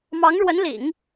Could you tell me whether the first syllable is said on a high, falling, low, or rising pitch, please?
rising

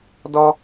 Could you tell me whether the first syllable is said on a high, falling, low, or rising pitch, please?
high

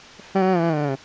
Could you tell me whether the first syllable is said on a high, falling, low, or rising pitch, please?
falling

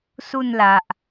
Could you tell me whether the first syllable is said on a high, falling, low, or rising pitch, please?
falling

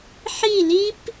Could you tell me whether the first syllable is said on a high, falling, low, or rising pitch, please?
falling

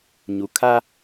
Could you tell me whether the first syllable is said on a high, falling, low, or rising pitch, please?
low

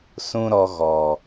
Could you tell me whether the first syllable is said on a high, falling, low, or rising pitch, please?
high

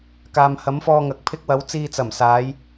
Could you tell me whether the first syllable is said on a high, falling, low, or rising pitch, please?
low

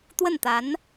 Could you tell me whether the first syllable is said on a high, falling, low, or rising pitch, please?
falling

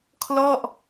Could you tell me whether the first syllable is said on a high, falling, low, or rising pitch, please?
falling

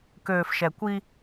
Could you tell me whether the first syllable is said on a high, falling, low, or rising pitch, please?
low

